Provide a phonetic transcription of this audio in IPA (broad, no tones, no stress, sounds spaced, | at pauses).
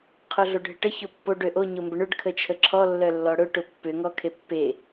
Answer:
qʰ o ɮ o ɖʱ ɪ ʈ ə ç o pː o ɖ ø ʔ o ɲ o m b ə ɳ ʏ ɖ kʰ ə t͡ʃʰ ə ǁʰ ɔ lː œ lː ɔ ɽ ʊ ʈ ʊ pː ʏ ŋ ɔ kʰ e pː e